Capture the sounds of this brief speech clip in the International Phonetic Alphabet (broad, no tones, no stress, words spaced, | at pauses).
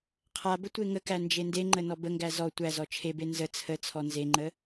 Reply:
qʰabə tʷeŋəkæ nd͡ʒendeŋ͡ǃə nɔbəŋɡæ zɔ tʷæzɔ t͡ʃʰebe nzə t͡sʰə t͡sʰɔnzeŋ͡ǃə